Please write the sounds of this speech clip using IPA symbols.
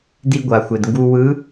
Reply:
di˧ɡʷa˩xʷe˩d ŋɡu˧wɯ˧˥

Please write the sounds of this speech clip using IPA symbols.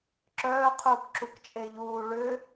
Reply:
ǁœː qʰuːkǁukt͡ʃʼeʎuː ɭʏ

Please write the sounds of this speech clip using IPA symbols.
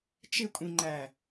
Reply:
t͡ʃɪkʷʼĩŋ͡ǃæ

